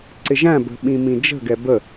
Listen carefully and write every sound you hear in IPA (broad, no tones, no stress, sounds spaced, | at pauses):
ǀ ɪ ʒ æ̃ b ə̤ ɓ ĩ m ĩ d͡ʒ ə̤ ɡ ɛ b ə